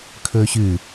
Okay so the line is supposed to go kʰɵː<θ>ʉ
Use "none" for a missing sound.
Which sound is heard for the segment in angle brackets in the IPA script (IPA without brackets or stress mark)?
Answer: ɕ